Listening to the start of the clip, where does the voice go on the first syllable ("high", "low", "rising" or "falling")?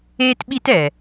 high